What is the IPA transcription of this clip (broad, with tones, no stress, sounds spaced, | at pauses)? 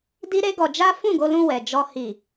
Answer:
d i˦ ɾ e˦ ɡ ɔ˧ d͡ʒ a˦ f ũ˦˨ ɡ o˧ l ũ˧ w ɛ˨ d͡ʒ ɔ˧ h i˨